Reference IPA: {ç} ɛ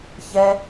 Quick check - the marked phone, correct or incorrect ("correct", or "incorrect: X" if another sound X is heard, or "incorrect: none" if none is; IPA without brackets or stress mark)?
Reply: correct